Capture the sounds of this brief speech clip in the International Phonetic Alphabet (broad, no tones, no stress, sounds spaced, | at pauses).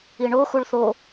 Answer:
i ɳ o x u ɭ θ o